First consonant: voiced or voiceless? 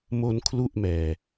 voiced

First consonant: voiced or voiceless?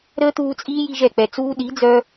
voiced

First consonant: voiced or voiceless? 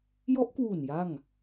voiced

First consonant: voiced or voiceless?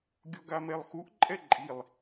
voiced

